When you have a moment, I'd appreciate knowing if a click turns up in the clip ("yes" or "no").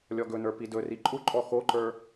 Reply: yes